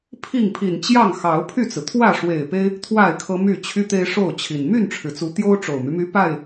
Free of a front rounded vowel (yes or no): no